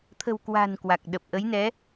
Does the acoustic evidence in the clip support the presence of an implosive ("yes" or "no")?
yes